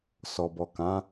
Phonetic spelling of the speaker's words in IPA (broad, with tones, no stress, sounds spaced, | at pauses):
s ɔ˨ b ɔ˨ k ã˨˦